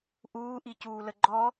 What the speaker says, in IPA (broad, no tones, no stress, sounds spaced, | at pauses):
ʔ uː ʔ i c uː l ə ɡ͡ǃ ɔ